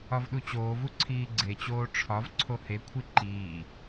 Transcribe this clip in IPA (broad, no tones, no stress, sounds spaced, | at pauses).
ɒ v ɗ u t͡ɕ oː v u ǀʰ iː ɡ͡ǀ e t͡ɕ oː ʈ͡ʂʰ ɒ v ǀʰ o h e kʷʰ i ǃ iː